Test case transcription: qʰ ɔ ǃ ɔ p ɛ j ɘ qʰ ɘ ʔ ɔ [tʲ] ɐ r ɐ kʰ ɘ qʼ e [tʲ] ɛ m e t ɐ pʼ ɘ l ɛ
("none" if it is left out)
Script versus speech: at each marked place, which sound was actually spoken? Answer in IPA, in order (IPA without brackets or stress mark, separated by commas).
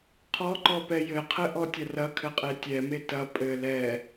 tʲ, tʲ